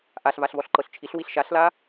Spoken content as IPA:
ʔ a ɬ v a ɬ v ɔ ɬ ǃ ɤ ɬ t͡ʃʰ i ɬ w i ɬ ʃ a ɬ l a

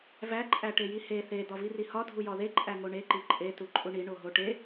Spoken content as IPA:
v æ ǃʼ æ ʈ e j i h e θ e d̪ ɒ v i r i h ɒ dʱ u j ɒ ð e ǃʼ æ ŋ o ɳ e ǃ i ǃʼ e t u ǃʼ u ɳ i ɳ o ɦ o ʈ e

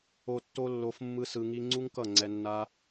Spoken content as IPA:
o˨ tː o˧ lː o˨ f mː ɯ˦ s ɯ˧ ŋ i˦ ŋ͡ǀ u˦ ŋ k ʌ˦˨ ŋ͡ǀ ɛ˧ nː a˦

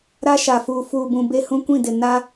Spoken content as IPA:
ɾ a˦ ʃ a˨ f uː˨ f uː˨ b ũ˨ b e˦ h ũ˦ kʷ ĩ˦˨ d ɪ˨ n a˦

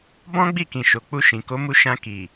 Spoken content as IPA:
b ɔ̃˦ ɡ͡b i˦˨ k ĩ˨ ʃ o˨ k͡p u˧ ʃ ĩ˨ k o˨˦ m u˧ ʃ ã˧ k i˨

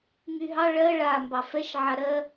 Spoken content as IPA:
ŋ y ɦ ɑ ɭ ɜ ɭ a m b ɑ f ɛ ʃ ʕ a ɾ ɜ

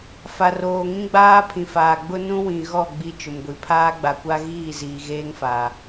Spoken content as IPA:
f a˨ r oː˨ ŋ ĩ˦ ɡ͡b aː˦ pʰ ĩ˨ f aː˨ ɡ͡b ʊ˦ n ũ˦ w ĩ˨ ɣ ɔ˦˨ ɡ͡b i˦ t͡ʃ ʊ˨ m ɡʷ i˨ pʰ aː˦ ɡ͡b a˨ kʷ a˦ ɣ iː˦˨ z iː˨ ɣ eː˦ ŋ f aː˨

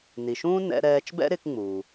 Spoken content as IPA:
n i˩ ʃ ũː˥ n ɛ̰˧ ɾ ɛː˧ t͡ʃ b ɛ̰˥ ɾ ɪ˧ k ŋ͡m u˩

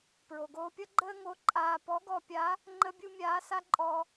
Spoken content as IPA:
p ɹ o˩ ɡ oː˧ pʲ ʌ˥ ɡ͡ǃ əː˥ ŋ o˧˥ ǃʼ aː˧ p ɔ˧˥ ɡ ɔ˧ pʲ a˧˥ | ŋ͡ǃ ə˥ bʲ u˥ mʲ aː˧˥ s a˥ ǃʼ ɔ˧

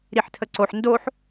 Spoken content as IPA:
ɾ i ħ tʰ ə ǀ o ħ n d o ħ

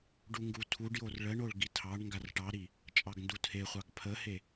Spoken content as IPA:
ɖ u ŋ ɡ u tʰ u ɖ j o r ɭ ə ɳ o ɭ ɡ i tʰ ɑ ɳ ŋ ɡ a r ʈ ɑ ɾ i | t͡ʃʼ ɑ ɡ n d u tʰ e χʷ ɑ ɡ pʰ ə h e

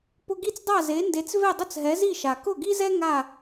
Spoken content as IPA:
p ʊ˧ ɡ i˥˩ t͡s dˤ a˥˩ z e˩˥ n d e˩˥ t͡s v e˥˩ dˤ ʊ˥˩ t͡s ɦ ɛ˩˥ z i˥˩ ʃ a˩ k ʊ˥˩ ɡ i˥ z ɛ˥ ŋ a˥˩

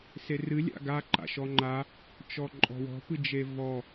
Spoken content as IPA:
s e r ɨ lʲ a̰ ɡ a ǃ a̰ ʃ ɔ ŋ͡ǃ a | t͡ʃ ɔ ǃʼ ɔ̤ w ɔ̤ p ɨ d͡ʒ e v ɔ

